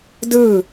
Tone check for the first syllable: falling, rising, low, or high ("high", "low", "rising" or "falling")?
falling